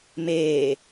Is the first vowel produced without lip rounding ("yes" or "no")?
yes